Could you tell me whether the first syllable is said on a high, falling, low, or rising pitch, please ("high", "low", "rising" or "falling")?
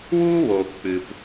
high